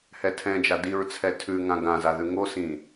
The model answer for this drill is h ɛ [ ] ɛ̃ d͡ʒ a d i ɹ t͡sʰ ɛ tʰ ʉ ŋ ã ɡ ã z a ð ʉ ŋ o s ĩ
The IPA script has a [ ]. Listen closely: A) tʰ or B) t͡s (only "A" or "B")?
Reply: A